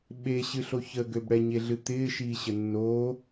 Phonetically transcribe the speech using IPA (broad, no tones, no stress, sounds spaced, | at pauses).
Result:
ɓ e ɕ ɨ ɬ o ç ə ɡ ø b ɽ ɛ ɲ e ɮ ɨ t̪ ɪː ʃ iː ɕ ə nː oː